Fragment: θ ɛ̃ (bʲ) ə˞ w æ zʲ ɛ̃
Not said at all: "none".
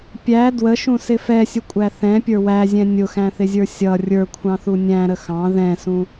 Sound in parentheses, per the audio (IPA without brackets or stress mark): pʲ